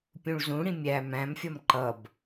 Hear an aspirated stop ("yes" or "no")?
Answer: no